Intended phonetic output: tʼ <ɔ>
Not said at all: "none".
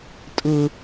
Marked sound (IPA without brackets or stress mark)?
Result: ʊ